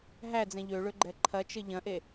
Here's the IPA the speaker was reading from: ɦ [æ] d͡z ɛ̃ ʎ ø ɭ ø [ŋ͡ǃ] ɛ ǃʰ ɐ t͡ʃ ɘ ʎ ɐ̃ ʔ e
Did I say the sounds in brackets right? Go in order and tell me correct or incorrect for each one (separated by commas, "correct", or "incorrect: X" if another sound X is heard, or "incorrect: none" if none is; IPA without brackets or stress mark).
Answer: correct, incorrect: ɡ͡ǃ